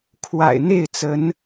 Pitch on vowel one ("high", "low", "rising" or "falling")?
low